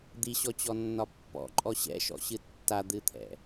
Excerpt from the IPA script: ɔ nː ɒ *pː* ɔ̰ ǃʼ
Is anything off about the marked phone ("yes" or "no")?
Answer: no